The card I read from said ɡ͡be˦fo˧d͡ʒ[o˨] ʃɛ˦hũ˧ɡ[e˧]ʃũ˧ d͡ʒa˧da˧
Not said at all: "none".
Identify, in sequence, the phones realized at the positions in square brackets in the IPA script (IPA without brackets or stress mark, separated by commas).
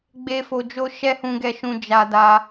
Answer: o˦, ɛ˧